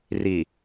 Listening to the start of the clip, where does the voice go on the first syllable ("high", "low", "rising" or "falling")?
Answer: low